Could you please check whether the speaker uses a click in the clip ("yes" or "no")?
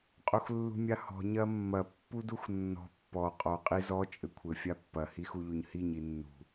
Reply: no